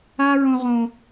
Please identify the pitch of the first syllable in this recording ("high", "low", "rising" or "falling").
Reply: high